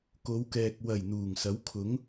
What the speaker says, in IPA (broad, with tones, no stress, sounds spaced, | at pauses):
k o˨˧ w k ɛː˨ k̚ w ɐ˨˩ j n̪ uː˨˩ ŋ s ɐ˨˥ w kʰ ʊ˨˥ ŋ